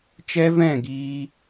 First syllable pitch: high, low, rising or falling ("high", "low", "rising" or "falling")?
high